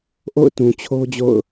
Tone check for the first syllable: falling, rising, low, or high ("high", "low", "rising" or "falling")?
falling